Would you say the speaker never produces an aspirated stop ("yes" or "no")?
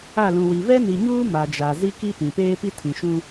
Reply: no